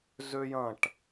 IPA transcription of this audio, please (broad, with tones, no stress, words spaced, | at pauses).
zø˦jɐ̃˦˨ʈ